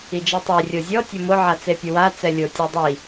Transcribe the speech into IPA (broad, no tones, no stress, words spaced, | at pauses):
id͡ʒitˤi rʲozʲɔ tʲʊmʊ ʕat͡sepʲʊwa t͡sɛlʲo tʲɛdˤi